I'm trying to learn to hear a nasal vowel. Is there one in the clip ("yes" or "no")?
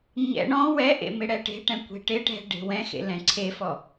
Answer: yes